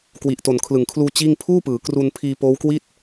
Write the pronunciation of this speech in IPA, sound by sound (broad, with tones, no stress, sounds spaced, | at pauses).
k w i˨˩ ʔ t o˨˩ n kʰ l ɯ˨˩ ŋ kʰ l uː˧ t͡ɕ iː˥˩ ŋ pʰ uː˥˩ p ɯː˩˦ k r u˧ n pʰ iː˧ p oː˦˥ w k w i˥˩ t̚